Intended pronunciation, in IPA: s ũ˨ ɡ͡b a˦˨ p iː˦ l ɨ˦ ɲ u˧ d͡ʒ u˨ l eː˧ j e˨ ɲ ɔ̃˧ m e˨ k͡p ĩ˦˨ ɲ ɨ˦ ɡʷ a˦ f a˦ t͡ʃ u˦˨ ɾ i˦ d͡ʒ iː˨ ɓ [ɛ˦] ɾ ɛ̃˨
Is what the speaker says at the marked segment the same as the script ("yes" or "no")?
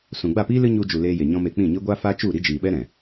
yes